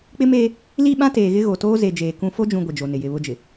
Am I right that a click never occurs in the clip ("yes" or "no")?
yes